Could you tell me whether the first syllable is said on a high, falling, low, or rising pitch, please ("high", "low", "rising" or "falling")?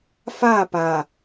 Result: falling